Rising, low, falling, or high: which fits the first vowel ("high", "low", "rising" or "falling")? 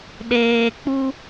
low